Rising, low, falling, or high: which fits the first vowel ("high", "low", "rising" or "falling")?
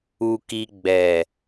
low